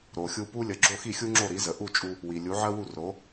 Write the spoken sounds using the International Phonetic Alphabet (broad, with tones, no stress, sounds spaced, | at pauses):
ɾ o˩ xʲ u˧ p u˥ lʲ ə˩˥ ɡ͡ǁ o˥˩ x i˥˩ xʲ u˥ ŋ͡ǁ o˥˩ ɾ i˩˥ z ə˩ ʔ u˥˩ t͡ʃʼ u˧ | w i˩ lʲ u˩˥ ʕ ɜ˥ w u˥˩ r o˩˥